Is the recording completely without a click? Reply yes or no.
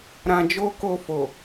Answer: yes